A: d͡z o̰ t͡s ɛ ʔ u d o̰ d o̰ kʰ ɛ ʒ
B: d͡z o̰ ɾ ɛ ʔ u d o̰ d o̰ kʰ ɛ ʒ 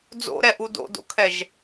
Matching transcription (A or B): B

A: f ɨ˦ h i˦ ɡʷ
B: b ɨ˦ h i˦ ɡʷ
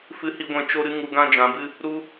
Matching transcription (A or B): A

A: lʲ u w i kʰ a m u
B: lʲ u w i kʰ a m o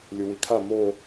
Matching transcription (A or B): B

